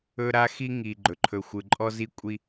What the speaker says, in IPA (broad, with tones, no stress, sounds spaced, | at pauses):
ɵ˦ ɾ a˦ x i˦ ŋ i˨ ɡ͡ǃ ɵ˨ ǃʰ ɵ˨ xʷ ɯ˨ ǃʼ ɔ˦ z i˦ kʷʼ i˦